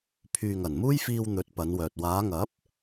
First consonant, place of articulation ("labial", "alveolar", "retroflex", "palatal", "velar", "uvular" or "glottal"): labial